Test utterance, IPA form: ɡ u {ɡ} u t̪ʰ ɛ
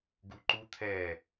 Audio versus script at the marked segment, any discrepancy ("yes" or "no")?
yes